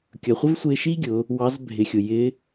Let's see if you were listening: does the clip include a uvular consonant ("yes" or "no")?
yes